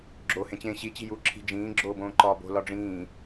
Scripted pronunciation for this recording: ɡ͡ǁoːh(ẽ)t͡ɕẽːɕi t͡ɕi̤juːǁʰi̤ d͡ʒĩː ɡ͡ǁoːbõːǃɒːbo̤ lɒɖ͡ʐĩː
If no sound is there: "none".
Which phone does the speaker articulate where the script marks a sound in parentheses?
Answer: ẽ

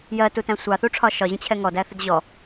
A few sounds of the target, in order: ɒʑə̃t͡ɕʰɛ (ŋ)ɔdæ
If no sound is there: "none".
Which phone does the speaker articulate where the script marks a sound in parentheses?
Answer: ŋ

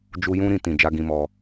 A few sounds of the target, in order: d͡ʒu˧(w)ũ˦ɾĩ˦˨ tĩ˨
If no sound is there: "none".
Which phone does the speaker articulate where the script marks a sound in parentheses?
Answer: j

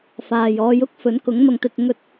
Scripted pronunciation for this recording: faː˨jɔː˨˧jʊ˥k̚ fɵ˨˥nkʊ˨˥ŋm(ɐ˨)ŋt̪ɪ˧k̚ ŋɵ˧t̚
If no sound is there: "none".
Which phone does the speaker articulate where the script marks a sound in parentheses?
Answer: ɐ˧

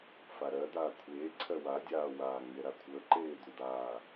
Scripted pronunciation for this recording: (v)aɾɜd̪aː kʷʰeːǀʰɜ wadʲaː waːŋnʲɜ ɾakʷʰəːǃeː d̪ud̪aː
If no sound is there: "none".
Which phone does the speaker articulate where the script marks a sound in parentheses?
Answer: f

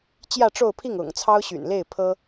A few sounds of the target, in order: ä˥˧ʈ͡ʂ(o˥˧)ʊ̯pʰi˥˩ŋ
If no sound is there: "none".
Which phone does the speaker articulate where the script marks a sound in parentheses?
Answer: o˥˧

